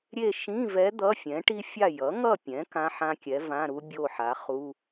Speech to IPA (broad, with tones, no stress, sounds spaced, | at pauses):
ɾʲ e˥˨ ʃ ĩ˧˥˧ v ɛ˧˥ d̪ ʌ˧˥˧ fʲ ɛ̃˩˥ ʈ i˥ fʲ a˥˨ j ʌ˩˥ ŋ ʌ˥˨ pʲ ɛ̃˩˥ k ã˧˥˧ ħ ã˥ kʲ ɛ˩˥ v ã˧˥˧ ɾ u˥ bʲ o˥˨ ħ a˩˥ χ u˧˥˧